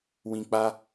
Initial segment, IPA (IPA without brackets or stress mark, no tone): w